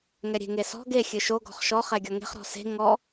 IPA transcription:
ŋ ɛ ɾʲ e̤ ŋ e s ɔ̤ ɡ e xʲ ɨ ʃ o ɡ ɔ̤ χ ʃ ɔ χ ɛ ɡʲ ɔ ŋ e̤ χ ɾ ɔ̤ s e̤ ŋ ɔ

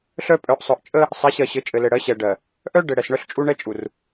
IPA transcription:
ɬ œ˦ pʼ œ˨ ʔ sˤ œ˨ ʔ t͡ʃʼ ə˦ | sˤ ɛ˨˦ ɕ ɜ˨ ɕ ɘ˨˦ t͡ʃʼ ɘ˨ l ɘ˨ ɽ ɜ˨˦ ɕ ɛ˨ ɖ ɜ˨ | ʔ œ˦ ɖ ɘ˨ ɽ ɛ˨ s ɳ œ˦ ɬ t͡ʃʼ u˦ ɳ ɛ˦ t͡ʃʼ u˨ r

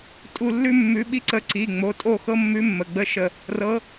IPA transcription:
tʼ u˦˨ lː ʉ˥ mː ʉ˧˥ ɓ i˥ ǀ ə˧˥ ǀ i˩˧˩ ŋ͡m o˩˧˩ tʼ o˦˨ x ɤ˥ mː ʉ˧˥ mː ə˩˧˩ ɡ͡b ə˧˥ ʃ ə˦˨ | r ɤ˧˥

